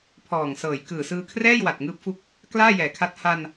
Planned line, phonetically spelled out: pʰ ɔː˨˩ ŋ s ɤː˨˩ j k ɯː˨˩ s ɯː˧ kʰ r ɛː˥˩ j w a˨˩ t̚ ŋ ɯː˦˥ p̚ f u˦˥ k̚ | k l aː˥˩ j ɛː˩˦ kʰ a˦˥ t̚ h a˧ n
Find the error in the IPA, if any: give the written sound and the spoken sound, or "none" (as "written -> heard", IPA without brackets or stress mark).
none